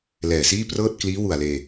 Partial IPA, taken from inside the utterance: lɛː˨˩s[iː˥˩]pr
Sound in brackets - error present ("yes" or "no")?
no